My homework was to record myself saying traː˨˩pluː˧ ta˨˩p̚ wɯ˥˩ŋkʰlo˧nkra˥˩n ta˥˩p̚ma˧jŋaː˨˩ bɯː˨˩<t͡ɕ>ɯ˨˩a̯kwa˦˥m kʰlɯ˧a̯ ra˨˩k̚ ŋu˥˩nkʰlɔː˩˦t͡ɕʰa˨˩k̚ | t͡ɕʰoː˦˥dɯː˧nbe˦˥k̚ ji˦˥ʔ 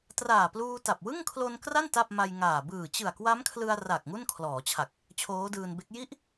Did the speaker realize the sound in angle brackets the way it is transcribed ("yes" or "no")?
yes